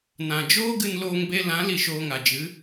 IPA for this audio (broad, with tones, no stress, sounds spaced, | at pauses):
n ã˨ d͡ʒ oː˦ ɡ ɨ˧ n l oː˧ ŋ b e˧ l ã˨˦ l i˧ ʃ oː˧ ŋ a˨ d͡ʒ ɨ˨˦